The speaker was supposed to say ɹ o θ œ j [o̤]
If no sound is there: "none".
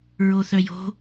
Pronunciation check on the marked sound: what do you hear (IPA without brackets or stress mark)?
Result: o̤